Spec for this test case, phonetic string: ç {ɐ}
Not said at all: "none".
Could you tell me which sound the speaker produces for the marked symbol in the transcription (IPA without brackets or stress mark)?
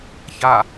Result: a